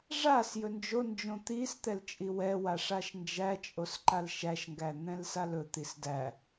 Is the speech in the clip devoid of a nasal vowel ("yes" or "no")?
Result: no